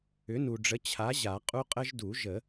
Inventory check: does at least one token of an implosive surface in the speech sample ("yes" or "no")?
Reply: no